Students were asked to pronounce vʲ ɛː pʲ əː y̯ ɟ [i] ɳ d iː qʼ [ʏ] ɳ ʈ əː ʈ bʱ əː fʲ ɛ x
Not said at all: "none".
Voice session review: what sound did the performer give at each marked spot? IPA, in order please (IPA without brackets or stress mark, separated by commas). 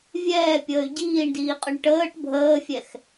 iː, ʏ